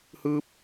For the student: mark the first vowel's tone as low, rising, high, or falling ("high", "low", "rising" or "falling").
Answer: falling